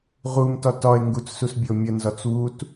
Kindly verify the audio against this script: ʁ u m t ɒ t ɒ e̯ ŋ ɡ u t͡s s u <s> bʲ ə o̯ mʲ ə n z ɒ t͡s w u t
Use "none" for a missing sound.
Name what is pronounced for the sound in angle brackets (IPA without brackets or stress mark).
s